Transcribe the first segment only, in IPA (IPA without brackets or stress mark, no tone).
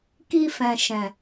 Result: k